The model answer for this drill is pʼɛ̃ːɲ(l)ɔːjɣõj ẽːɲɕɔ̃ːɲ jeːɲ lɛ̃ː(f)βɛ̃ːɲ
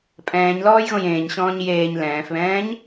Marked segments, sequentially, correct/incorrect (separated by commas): correct, correct